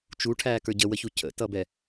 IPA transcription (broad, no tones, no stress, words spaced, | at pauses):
t͡ʃuʈʰæːkə˞ ɟəwəçu cʰə̰tʌbɛ